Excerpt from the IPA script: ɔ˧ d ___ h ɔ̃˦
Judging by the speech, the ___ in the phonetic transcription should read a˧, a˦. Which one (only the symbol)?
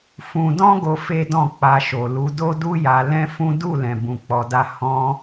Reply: a˦